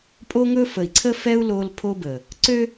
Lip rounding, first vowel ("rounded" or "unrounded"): rounded